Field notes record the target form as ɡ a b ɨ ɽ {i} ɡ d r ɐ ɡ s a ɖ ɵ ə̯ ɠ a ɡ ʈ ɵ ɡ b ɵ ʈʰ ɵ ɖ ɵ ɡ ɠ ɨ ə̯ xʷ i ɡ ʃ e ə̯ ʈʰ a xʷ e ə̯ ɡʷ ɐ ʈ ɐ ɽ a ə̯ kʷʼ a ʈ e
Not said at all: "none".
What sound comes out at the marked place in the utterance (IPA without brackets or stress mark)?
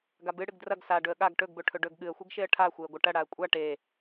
ɨ